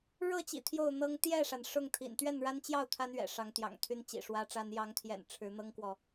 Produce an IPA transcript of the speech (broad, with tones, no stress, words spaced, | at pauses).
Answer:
ɻɤ˥˨t͡ɕḭ˨˩ t̪ʰjo˥˨ʊ̯n̪ɤ˦ŋ t̪jɛ˥˨ʂa˩n ʂʊ˥˨ŋt̪ʰḭ˨˩n t̪ɥɛ˥˨nɻa˦nt͡ɕjɑ˥˨ʊ̯ t̪ʰa˦nɥɛ̰˨˩ʂɑ˨˦ŋt̪jɑ̰˨˩ŋ t̪ʰy˦nt͡ɕḭ˨˩ʂwä˦ʈ͡ʂa˦n jɑ˨˦ŋt̪ʰjɛ̰˨˩n ʈ͡ʂʰɻ̩˨˦ n̪ɤ˦ŋkwɔ˨